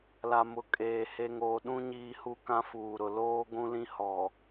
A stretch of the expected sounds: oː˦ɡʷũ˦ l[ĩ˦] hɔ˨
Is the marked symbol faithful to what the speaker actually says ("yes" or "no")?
yes